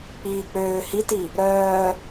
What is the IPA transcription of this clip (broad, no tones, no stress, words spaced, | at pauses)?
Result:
k͡piːk͡pøː hiti | ɾœː